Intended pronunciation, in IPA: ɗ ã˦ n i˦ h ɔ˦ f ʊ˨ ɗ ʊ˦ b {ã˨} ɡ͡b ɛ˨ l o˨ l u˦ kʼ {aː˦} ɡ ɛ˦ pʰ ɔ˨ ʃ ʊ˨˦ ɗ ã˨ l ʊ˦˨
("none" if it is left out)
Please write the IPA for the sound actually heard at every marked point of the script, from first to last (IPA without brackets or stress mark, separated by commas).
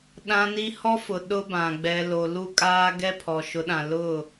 ã˨, aː˦